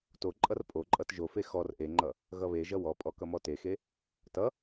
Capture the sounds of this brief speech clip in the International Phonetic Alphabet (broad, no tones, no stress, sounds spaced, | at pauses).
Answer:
t o ǃʼ ʌ r pʼ o ǃʼ ʌ t ʒ o f e x ɔ r ʔ e ŋ͡ǃ ʌ | ɣ ʌ β e ʒ ʌ w ɔ pʼ ɔ k ʌ m ɔ t e x e | t ʌ